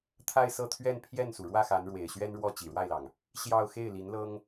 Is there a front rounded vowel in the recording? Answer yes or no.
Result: no